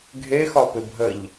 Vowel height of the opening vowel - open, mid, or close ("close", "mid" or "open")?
mid